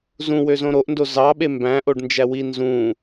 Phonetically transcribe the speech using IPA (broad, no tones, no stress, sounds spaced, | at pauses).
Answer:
z ũ w ø z õ ɾ o ʔ n d o z ɑ ɓ e m b æ̃ ʔ o ɖ n d͡ʒ æ w i n z ũ